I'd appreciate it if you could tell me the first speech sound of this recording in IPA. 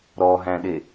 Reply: ɾ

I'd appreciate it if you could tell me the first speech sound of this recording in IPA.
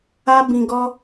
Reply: a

